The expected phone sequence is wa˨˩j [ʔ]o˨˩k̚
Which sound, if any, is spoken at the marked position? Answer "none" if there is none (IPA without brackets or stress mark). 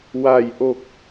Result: ʔ